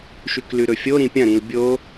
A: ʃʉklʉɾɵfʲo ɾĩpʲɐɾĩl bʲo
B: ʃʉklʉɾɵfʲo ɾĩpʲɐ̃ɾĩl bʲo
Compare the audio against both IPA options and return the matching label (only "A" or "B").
B